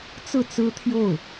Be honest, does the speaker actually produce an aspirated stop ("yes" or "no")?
yes